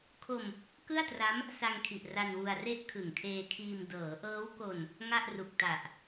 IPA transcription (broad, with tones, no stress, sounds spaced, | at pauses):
kʰ o˧ m | k ɯ˥˩ a̯ t r a˦˥ m | s a˧ ŋ kʰ i˨˩ ʔ r a˧ n w u˧ a̯ r e˥˩ ʔ kʰ ɯ˨˩ ŋ kʰ eː˧ kʰ iː˧ m d ɤː˩˦ ʔ ɤː˦˥ w k o˧ n | ŋ a˥˩ ʔ r u˨˩ k̚ t a˨˩ ʔ